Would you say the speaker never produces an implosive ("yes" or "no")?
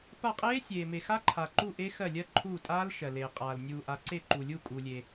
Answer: yes